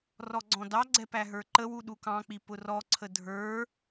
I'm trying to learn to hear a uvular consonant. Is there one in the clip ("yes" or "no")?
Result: no